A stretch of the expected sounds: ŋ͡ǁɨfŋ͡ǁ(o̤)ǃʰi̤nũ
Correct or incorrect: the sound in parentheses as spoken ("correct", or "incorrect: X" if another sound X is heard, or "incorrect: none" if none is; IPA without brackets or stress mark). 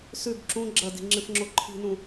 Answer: incorrect: o